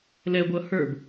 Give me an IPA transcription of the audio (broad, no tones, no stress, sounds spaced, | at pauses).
l ɛ ɡʷ ʌ h ə˞ b